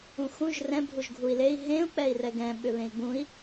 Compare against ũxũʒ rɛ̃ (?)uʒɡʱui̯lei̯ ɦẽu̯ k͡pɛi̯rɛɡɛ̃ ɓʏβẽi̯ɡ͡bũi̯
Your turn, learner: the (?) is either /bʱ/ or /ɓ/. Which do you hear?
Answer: bʱ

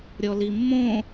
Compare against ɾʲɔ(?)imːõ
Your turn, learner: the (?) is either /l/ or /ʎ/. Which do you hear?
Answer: l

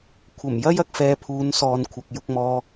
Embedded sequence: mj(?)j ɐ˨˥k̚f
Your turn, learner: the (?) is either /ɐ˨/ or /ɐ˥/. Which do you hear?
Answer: ɐ˥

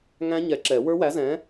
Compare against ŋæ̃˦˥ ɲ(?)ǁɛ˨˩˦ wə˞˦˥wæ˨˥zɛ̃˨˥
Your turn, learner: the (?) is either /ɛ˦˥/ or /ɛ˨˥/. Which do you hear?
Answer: ɛ˨˥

